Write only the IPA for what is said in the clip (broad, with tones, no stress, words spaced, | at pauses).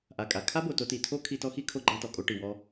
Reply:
ʔa˨kʼa˨ kʰa˦bo˨ to˧ti˨tʰo˦kʰi˧ tɔ˦xi˦kʰo˦ ɡ͡ǃa˦tɔ˨ kʼo˧ʈi˨wɔ˧